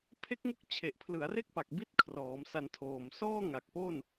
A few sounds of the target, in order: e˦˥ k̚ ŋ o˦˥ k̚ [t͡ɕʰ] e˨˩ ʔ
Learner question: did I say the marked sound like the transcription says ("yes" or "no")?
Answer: yes